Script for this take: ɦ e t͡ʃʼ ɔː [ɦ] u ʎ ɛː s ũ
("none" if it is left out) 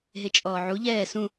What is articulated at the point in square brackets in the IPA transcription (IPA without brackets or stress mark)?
ʕ